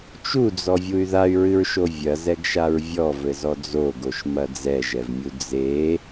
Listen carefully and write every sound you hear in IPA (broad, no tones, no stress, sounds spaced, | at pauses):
t͡ʃ u d͡z ɔ vʲ u y̯ ð a y̯ ɹ ɨ ɹ ʃ o vʲ ɐ z ɛ ɡ ʃ a ɹ vʲ ɔ v ɘ z ɔ d͡z o ɡ o ʃ m ɐ d͡z ɛ ʒ ɛ v mʲ u d͡z e